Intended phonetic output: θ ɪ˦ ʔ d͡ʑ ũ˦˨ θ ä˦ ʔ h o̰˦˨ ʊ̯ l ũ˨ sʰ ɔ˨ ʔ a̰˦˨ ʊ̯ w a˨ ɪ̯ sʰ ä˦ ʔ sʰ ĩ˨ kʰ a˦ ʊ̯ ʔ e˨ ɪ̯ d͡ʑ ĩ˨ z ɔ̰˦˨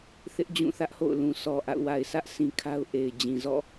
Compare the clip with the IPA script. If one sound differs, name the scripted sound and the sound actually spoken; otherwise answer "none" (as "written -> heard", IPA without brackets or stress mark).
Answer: none